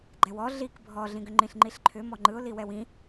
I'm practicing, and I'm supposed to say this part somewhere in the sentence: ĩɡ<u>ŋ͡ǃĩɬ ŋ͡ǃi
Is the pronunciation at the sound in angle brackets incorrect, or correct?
incorrect